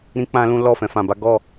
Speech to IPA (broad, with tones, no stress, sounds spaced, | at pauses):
ɾ ĩ˦ k͡p ã˦ l ũ˦ l ɔ˦˨ f ɛ̃˨˦ f ã˧ b a˦ ɡ ɔ˦˨